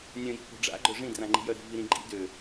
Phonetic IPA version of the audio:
nʲœ̃ji̤po̤ ɖ͡ʐa̰ɡ͡ǃœ ʐĩdrãŋ͡ǃi̤jœ ɾi̤viɾĩ ɡ͡ǃḭ dø

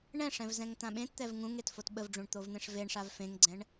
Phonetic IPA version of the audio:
ɳɛ̃ʂɛ̃v zɛ̃ŋt̪ãɓẽtt̪ɛv ŋũŋ etfotɓəvɖ͡ʐũɳ t̪ovn̪ẽʂveɳʂav fẽŋɡ͡ǀɛ̃ɳ

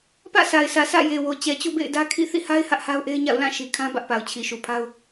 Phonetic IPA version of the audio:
pä̰˦˨sa˨ɪ̯sä˨ sʰä̰˦˨je˨wo˨ t͡ɕɛ˨t͡ɕṵ˦˨bḛ˦˨ɪ̯ dä˦kʰḭ˦˨ θḭ˦˨ha˦ɪ̯ hä˦ʔha˦ʊ̯ʔe˦ɪ̯ɲa̰˦˨ʊ̯ lã˦˨ ʃi˨kʰã˦ bä˦ʔpa˨ʊ̯t͡ɕʰi˨ ʃu˨pʰa˦ʊ̯

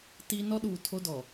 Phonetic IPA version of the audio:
ti˦ nɔ˦ɗuː˨ tʰo˦dɔ˨

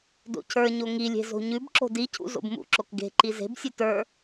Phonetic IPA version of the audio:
do̰cʰə˞ɲo ŋilʲe̤ zo̤ɲʉbǁo̤ dicʰṵ zo̰bmṵǁok ɡe̤ǃi ze̤bsʲʉ tə˞

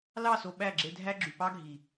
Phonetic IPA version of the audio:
lɑ˦˨so˨ ɓæ˦˨ɡ͡ǁe˧dʱæ˦ɡ͡ǁy˨ pɑ˦ɡʱi˨

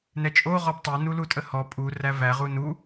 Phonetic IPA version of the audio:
nɛt͡ʃʼo ʁɔbtˤo nulutʼəhɔ pʼu rævæ ʁunu

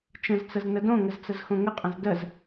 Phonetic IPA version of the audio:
t͡ʃə̃zt͡səz nədõŋəz t͡səzxõŋəqʼə̃z dəz

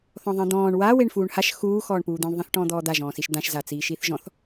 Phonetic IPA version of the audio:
θɔ̃ðˤĩd̪ɔ̃ːɳ wa weɳfuːɳhaʃ xuː xɔːɳpuːd̪ĩɳ ðˤĩθʈɔ̃ːd̪ɔːd̪a ʒɔ̃ːsiʃd̪ãʃ zat͡siːʃiːθʒɔ̃θ

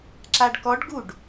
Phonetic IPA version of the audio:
ǁaɖkɔɖɡuɖ

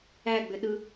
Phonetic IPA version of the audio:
æɡ͡bʏɗɯ

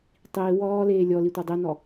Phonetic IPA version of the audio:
tˤiː wɔːleː lʲɔli tʷadˤinɔ

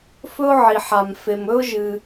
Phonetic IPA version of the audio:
fɵ˦ʊ̯ʕi˩ħa˩m fe˩mɵ˦ʊ̯ ʒɨ˩

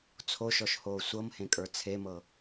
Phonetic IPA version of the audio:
t͡sʰoʃɔʃhoː sʷɤmhẽkʼə˞ t͡sʰemɤ

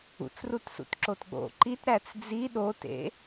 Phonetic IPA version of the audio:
ṵt͡srutsṵt ǁotɠo̰ ǃit ɾæt͡sd͡zi ɗotḛ

